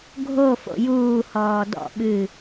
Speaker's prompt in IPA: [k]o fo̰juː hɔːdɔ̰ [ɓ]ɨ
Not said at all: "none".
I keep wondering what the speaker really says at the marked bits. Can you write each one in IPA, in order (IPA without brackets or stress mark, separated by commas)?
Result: ɡʱ, ɓ